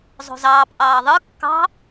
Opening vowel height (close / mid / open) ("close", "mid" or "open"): mid